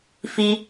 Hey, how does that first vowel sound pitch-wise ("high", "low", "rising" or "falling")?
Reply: high